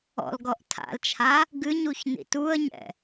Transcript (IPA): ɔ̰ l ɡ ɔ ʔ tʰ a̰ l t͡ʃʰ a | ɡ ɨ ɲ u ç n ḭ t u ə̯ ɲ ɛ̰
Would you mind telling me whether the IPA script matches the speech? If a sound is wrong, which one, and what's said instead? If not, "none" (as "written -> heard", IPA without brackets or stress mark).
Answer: none